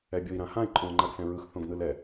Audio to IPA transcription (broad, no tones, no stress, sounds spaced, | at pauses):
ɛ bʲ ʊ i̯ ɾ ã h ã i̯ ǃʼ õ l ŋ͡ǃ a ɡ s ɛ̃ ɹ ɯ x θ õ ɡ n ɯ l ɛ